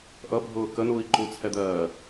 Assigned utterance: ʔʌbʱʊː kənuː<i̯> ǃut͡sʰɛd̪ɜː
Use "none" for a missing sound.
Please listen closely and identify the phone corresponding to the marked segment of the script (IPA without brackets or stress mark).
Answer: i̯